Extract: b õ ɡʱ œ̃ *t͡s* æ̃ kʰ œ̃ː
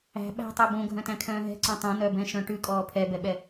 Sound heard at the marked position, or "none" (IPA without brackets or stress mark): t